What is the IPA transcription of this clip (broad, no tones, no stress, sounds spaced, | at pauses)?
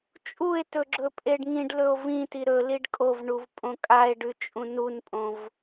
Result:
t͡ʃʼ u e̯ t ɵ ɡ͡ǁ ɵ pʼ e ɖ ŋ ĩ ɖ l ɵ o̯ v ĩ t i ɾ ɵ l i ɖ kʼ o v ɳ u v pʼ õ kʼ a e̯ ɖ ʉ t͡ʃʼ ũ n u n pʼ õ v